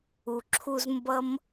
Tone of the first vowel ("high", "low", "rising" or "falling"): low